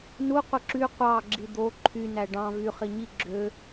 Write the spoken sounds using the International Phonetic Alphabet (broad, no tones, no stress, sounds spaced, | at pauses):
n u qʷ ɯ ǁ y qʷ ɑ ɡ͡ǁ i d̪ o ǃʰ y n æ ɖ ɑ̃ v y χ i ɲ i ɡ͡ǁ ø